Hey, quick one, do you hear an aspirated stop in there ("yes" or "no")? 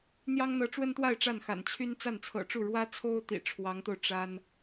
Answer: yes